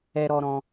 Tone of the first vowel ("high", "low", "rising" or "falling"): high